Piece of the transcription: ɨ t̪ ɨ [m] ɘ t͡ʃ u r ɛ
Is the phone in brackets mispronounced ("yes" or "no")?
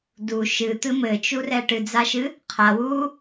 no